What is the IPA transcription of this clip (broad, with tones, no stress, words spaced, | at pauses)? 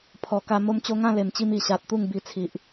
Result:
pʰɔ˨˩ka˧ mo˧mt͡ɕo˧ ŋã˥˧le˨˩mt͡ɕi˧m i˨˩ɕa˨t̚ t̪u˥˧ŋbi˧t͡sʰi˨ʔ